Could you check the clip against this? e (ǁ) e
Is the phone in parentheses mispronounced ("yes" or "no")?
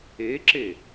no